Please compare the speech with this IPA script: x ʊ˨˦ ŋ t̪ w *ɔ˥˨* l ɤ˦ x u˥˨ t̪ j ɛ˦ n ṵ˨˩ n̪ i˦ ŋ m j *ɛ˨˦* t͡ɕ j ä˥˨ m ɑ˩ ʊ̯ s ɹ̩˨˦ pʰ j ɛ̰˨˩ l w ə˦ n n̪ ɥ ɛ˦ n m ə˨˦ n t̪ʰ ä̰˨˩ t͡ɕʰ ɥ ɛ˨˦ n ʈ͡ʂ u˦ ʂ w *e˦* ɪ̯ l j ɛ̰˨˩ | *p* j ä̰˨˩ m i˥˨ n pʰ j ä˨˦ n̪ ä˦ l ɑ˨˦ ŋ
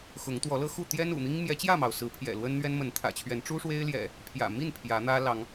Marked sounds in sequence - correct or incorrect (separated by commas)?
incorrect, correct, correct, incorrect